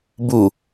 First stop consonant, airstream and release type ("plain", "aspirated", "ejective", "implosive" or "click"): plain